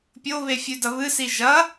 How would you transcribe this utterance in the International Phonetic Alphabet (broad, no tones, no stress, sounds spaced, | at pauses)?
pʲ o β e fʲ ʉ d ɐ β ɨ s i ʒ ɐ